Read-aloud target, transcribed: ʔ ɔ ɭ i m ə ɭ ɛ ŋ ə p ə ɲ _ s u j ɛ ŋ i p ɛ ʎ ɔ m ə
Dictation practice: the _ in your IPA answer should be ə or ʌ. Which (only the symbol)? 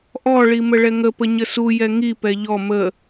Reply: ə